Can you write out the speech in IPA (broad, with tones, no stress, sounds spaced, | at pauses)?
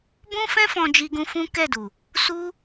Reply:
b ũ˦ f ɛ̃˦ f ɔ̃˧ d͡ʒ i˧ ɡ ũ˧ f ũ˦ k ɛ˦˨ d u˨ | s u˦